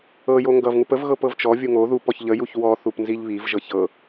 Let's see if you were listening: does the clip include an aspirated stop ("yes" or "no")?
no